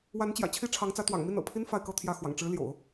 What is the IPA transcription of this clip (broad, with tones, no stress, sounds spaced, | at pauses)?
w a˧˥ n t͡ɕ j ä̰˨˩ t͡ɕʰ i˥ ʈ͡ʂʰ ɑ˧˥ ŋ t͡s ä˧˥ t̪ w ɑ̰˨˩ ŋ m i˥˩ n ɤ̰˨˩ pʰ i˥ n f a˥˧ ɪ̯ k ɤ˥˧ t̪ʰ j ä˥˩ x w ɑ̰˨˩ ŋ ʈ͡ʂ ɻ̩˧˥ l j o̰˨˩˦ ʊ̯